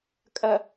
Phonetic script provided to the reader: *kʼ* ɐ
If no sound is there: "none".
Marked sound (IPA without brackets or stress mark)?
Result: kʼ